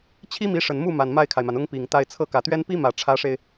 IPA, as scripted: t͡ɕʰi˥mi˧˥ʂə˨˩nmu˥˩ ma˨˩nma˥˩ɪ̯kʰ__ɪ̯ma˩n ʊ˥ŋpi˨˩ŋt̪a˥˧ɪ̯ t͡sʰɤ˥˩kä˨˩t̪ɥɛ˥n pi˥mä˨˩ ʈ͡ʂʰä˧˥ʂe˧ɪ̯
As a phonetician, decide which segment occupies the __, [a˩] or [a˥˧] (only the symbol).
a˩